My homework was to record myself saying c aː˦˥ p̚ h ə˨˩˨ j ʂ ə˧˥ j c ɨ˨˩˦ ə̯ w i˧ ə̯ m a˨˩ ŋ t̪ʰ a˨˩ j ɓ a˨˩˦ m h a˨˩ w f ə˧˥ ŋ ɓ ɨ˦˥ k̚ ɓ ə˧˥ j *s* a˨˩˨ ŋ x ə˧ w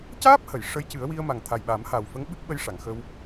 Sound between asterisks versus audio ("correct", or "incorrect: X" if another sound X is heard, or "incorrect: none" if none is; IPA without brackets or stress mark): incorrect: ʂ